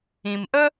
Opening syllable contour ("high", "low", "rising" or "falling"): low